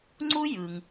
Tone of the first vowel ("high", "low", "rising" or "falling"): high